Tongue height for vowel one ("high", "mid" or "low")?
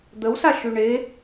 mid